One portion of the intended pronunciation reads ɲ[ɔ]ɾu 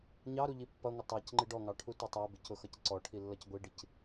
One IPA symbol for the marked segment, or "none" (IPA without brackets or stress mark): ɑ